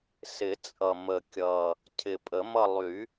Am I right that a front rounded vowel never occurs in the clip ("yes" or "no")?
no